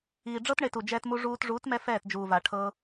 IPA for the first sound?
iː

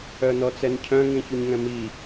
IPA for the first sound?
œ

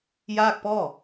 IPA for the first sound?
j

